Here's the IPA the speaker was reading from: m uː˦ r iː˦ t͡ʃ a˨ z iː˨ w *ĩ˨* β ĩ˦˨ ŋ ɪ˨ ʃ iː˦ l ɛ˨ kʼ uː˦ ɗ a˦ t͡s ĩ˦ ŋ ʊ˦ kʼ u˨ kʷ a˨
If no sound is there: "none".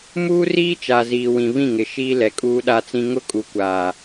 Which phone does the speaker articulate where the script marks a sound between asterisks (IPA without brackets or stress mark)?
ĩ˨